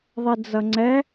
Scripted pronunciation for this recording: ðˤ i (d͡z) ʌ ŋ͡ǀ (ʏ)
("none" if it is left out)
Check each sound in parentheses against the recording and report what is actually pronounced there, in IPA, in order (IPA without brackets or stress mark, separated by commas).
d͡z, ɛ